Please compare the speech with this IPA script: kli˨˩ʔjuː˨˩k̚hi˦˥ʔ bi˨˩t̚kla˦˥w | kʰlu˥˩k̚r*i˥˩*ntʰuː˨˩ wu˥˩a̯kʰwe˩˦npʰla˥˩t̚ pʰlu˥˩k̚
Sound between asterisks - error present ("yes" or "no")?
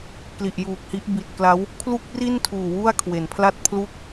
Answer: no